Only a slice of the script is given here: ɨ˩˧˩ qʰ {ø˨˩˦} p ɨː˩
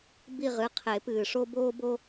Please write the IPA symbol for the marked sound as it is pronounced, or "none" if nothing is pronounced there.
e˨˩˦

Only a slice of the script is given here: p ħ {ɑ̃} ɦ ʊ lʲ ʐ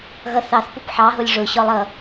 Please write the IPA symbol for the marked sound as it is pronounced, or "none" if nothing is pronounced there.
ɑ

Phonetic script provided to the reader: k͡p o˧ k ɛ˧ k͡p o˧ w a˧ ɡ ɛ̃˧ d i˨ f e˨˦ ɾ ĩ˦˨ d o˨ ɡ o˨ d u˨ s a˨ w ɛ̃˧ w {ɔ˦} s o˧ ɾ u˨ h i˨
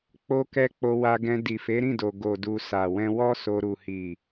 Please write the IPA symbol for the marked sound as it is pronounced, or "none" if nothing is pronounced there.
ɔ˦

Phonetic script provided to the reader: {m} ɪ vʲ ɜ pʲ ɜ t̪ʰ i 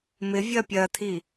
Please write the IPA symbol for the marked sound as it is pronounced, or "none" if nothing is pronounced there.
m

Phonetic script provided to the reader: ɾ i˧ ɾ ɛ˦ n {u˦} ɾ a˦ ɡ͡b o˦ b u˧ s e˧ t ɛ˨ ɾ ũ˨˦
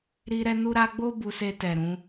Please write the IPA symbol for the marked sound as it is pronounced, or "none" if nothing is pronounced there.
u˦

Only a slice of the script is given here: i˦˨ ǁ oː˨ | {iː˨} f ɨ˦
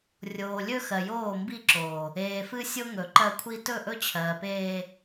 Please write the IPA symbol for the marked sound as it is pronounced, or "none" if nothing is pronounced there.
eː˨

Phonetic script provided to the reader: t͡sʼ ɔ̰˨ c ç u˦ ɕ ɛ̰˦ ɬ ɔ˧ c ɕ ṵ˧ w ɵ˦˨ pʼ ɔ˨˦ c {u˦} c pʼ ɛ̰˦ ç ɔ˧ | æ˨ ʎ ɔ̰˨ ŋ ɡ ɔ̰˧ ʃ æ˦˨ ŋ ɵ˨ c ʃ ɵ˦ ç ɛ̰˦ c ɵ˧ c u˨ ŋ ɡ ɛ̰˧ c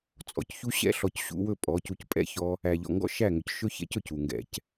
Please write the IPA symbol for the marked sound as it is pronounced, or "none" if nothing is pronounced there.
u˧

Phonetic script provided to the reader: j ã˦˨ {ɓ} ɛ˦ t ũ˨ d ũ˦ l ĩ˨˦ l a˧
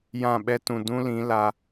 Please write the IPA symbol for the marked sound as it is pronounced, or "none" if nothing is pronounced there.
ɓ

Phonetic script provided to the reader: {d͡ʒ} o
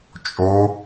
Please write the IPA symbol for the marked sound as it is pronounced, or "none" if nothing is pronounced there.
t͡ʃʼ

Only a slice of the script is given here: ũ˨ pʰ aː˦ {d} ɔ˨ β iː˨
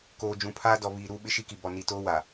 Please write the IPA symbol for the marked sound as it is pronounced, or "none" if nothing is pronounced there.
d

